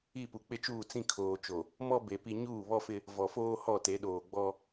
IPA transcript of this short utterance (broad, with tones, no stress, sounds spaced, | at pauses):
i˦˨ p u˨ k͡p ɪ˦ t͡ʃ uː˦˨ t͡s ĩ˦ kʰ oː˨ t͡ʃ o˨ | m ɔ˦ b e˨ p i˦ ɲ uː˦˨ β ɔ˦ f ɪ˦ | v ɔ˨ f oː˦ h ɔ˦˨ t e˨˦ ɗ oː˨ ɡ͡b ɔ˦